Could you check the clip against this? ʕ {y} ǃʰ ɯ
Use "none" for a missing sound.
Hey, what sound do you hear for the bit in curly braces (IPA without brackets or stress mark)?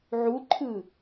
u